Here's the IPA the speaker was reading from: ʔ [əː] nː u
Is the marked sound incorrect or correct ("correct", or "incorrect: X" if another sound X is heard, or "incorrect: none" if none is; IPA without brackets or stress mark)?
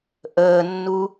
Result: correct